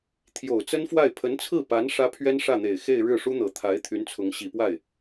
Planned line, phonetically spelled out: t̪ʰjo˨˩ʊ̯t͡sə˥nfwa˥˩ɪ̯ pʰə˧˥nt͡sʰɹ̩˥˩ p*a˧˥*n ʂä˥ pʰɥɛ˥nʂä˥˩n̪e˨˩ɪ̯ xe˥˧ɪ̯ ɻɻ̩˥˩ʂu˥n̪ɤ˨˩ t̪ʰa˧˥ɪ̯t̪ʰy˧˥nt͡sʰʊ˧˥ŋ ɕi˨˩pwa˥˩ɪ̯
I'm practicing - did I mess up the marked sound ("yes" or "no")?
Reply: no